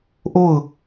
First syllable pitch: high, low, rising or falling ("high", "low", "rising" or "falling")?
falling